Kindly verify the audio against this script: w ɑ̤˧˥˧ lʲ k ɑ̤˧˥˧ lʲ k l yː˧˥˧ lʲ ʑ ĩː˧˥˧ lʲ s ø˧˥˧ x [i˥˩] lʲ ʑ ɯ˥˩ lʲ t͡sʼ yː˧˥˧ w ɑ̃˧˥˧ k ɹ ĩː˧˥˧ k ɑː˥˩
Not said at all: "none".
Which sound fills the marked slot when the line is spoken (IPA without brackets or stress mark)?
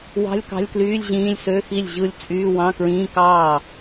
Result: i˥˩